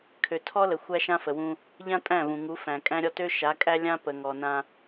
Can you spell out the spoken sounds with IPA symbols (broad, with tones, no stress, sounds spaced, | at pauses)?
kʰ ø˨ tʰ ɔ˦ l ə˨ xʷ æ˦ ʃ ã˦ f ə˨ w ũ˦ | ʎ ã˦ tʼ æ̃˦˨ v ũ˨ ŋ u˨˦ f æ̃˨ kʼ æ̃˦ ɾʲ ɔ˦ t ø˦ ʃ a˨˦ kʼ æ˦ lʲ ã˦ p ə˨ ŋ ɔ˨ n ã˦